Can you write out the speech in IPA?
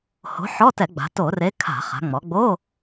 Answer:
h o̤˨˥ ħ ɔ˧˥˧ t ɛ˧˩˧ ɡ͡b a̤˩˧ t o˧˩˧ r e˨˥ kʰ a̤˧˩˧ χ a̤˩˧ ŋ͡m ɔ˩˧ ɡ͡b o˧˥˧

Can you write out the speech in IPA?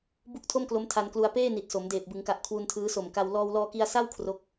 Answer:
b u˦˥ k̚ tʰ o˥˩ m k l o˦˥ m tʰ a˧ n k l u˧ a̯ p eː˥˩ n i˨˩ t̚ s o˩˦ m d eː˨˩ p̚ b ɯ˩˦ ŋ k a˨˩ ʔ kʰ w u˧ n tʰ ɯː˦˥ s o˨˩ m k a˧ w l ɔː˧ w l ɔː˧ k i˧ a̯ s a˥˩ w kʰ r o˦˥ k̚

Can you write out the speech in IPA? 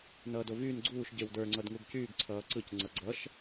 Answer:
n ʌː d o v yː n ɡ͡ǀ uː ʃ ɟ e w d ə˞ ŋ͡ǀ ʌ d ŋ u ɡ c yː ɡ ǀʰ ʌː ǀ ɯ c ŋ͡ǀ ʌ ɡ͡ǀ ʌ ʃ

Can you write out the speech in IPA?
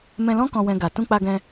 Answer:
m ɛ̃˧ l ɔ̃˦ k ɔ̃˧ w ɛ̃˧ ɡ a˨ t ũ˧ k͡p a˧ ɡ ɛ̃˧

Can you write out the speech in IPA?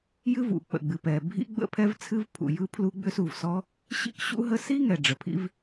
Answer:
j ɨ˥ v ṵ˩ k͡p ə̰˩ ɡ͡b ɨ˩ p ɛ˩ bʱ ḭ˥ ɡ͡b ə̰˥ pʰ ɛ˥ v t͡sʰ ɨ˥ v pʰ ṵ˩ j ɯ˥ pʰ l u˥ ɡ͡b ʏ˥ s u˩ v s ɔ˥ | ɕ ḭ˥ k ɕ ṵ˥ ɦ ə˥ s i˥ ŋ ɛ˩ ɖ͡ʐ ə˩ pʰ ḭ˥ v

